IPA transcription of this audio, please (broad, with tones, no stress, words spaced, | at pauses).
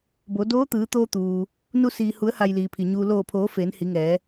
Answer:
bo˩˧ doː˧˥t̪ɯː˩˧t̪oː˧ t̪uː˩ | nu˧siː˩ hu˩˧ə̯ha˩j liː˩pʰi˩ɲuː˧ loː˧˩pʰoː˩˧ feː˩˧nhi˩˧ŋɛː˩˧